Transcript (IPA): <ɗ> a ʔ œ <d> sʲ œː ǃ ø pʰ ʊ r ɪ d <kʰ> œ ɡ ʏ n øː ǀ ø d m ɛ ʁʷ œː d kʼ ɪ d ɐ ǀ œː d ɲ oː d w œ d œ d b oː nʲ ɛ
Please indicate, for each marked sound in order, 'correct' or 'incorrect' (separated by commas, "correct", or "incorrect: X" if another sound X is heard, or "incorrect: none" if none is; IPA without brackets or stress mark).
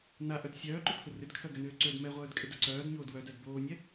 incorrect: n, correct, correct